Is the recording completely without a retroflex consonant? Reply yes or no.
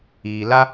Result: yes